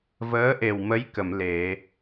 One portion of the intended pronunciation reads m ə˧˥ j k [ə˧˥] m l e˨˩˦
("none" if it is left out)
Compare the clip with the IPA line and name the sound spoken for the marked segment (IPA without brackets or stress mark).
ə˨˩˨